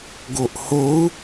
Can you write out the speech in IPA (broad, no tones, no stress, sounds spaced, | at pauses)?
ɡ o ʔ h o u̯